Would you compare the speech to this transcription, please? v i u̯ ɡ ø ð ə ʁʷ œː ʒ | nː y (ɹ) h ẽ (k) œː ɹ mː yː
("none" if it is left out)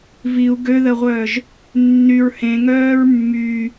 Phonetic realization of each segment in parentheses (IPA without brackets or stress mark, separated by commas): ɹ, ŋ